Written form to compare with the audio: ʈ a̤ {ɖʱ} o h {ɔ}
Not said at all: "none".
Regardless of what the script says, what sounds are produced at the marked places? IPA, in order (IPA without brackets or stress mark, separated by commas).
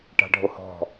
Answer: ɖʱ, ɔ̤